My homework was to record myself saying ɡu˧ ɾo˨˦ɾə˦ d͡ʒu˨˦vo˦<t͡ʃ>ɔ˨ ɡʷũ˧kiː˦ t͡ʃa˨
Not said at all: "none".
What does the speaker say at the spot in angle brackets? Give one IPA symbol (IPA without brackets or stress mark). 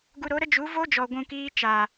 d͡ʒ